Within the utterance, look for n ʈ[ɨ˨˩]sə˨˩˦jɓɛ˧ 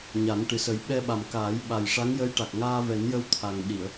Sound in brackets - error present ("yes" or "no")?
no